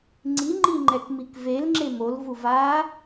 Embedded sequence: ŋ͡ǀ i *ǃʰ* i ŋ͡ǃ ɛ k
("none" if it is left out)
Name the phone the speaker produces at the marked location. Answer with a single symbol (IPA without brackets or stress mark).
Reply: ŋ͡ǃ